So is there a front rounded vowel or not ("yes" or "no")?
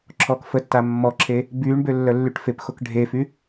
yes